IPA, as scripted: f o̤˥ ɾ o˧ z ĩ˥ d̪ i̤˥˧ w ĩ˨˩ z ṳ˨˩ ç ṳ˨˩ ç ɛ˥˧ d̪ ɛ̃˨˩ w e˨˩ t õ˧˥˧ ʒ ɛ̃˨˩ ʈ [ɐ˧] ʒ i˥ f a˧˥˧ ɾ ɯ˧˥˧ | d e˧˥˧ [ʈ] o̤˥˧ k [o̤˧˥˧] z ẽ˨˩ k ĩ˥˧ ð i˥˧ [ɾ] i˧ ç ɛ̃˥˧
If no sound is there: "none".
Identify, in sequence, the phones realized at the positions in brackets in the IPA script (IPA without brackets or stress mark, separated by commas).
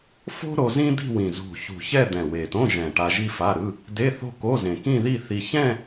a˧, θ, o˧˥˧, θ